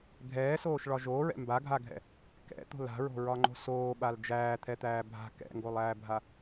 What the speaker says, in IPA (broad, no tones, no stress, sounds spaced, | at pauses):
ɡʱ ɛː s oː ʃ ɭ ɒ ʒ oː ɹ ɛ̰ m b a ɡʱ a ɡʱ ɛ̰ | k ɛ̰ t̪ o̤ l a̤ ɹ o̤ ɹ ɒ ŋ͡ǃ o̤ s oː ɓ a l d͡ʒ æː t̪ʰ ɛ t̪ æː bʱ a̤ k ɛ̰ ŋ ɡ o lˠ æː bʱ a